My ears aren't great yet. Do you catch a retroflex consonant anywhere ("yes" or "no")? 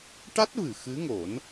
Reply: yes